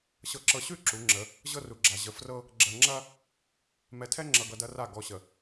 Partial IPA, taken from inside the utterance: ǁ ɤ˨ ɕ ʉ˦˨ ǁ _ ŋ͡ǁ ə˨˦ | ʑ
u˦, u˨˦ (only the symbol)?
u˨˦